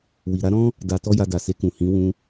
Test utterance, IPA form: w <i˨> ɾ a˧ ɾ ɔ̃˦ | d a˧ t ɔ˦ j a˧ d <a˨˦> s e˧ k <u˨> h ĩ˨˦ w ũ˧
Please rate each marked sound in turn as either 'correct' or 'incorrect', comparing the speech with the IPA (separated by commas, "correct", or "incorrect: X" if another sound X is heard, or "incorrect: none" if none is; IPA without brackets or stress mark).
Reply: correct, incorrect: a˨, incorrect: ũ˨